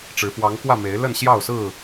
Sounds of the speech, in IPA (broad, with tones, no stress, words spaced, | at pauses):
ʈ͡ʂɻ̩˨˦ fwɑ˨˦ŋkwä˥˨ me˨˦ɪ̯ lə˥˨nɕjɑ˥˨ʊ̯sɹ̩˥˨